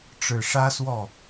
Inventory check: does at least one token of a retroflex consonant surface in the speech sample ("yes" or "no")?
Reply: yes